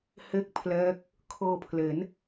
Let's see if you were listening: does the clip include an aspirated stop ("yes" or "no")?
yes